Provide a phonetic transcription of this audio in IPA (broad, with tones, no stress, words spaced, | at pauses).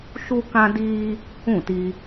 ʃu˦kã˦diː˦ | ũ˦˨ti˧